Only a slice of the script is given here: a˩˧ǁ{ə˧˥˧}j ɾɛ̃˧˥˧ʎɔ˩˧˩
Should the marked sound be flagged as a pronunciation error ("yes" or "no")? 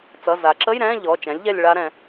no